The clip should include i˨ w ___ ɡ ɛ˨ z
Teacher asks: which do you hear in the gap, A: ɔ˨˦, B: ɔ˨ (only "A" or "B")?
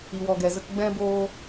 B